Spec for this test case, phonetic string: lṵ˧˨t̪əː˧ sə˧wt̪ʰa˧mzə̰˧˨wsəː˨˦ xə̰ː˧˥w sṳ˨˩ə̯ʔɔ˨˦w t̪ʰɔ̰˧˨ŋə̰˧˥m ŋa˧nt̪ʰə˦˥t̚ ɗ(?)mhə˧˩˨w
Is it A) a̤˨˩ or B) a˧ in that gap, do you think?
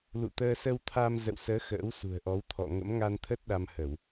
B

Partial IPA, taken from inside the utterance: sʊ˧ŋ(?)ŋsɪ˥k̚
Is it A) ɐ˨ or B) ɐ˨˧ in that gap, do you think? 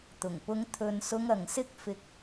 A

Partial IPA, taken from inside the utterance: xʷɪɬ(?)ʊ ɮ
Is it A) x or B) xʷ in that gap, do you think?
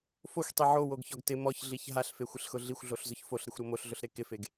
A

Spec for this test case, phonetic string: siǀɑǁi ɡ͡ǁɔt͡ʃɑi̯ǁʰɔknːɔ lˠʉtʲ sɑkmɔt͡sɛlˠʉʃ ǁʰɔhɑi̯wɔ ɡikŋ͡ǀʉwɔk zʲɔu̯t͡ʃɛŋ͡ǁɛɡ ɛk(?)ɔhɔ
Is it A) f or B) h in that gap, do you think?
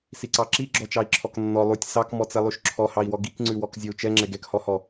B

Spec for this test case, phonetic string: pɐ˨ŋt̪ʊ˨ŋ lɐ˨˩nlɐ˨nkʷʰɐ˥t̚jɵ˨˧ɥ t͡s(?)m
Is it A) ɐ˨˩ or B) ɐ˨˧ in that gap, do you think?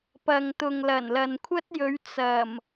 A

